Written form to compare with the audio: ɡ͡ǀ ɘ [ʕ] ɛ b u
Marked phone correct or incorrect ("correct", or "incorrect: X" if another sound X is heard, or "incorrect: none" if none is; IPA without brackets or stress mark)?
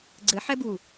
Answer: incorrect: ħ